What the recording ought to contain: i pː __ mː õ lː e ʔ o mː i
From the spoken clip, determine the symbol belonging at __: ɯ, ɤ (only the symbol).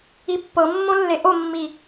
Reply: ɤ